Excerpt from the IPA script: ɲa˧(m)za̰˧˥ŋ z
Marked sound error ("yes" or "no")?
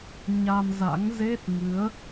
no